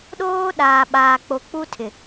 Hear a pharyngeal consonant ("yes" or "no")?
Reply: no